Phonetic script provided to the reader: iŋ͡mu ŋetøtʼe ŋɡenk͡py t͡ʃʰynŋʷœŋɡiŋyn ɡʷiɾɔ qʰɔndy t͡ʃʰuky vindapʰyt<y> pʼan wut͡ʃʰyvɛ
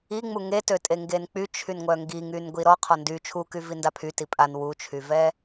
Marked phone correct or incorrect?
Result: incorrect